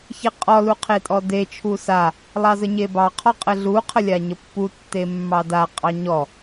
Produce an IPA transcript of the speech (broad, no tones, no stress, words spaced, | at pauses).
çeqʼɔ luqʰetʼɔde t͡ʃʰusa | lˠɑzəɲebɑ qʰɔqʼəɮu qʰəlʲaɲəpːu tːemːɑda qʼɑɲɔ